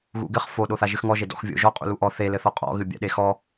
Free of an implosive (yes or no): no